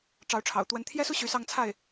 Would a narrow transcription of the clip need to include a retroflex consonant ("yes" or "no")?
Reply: yes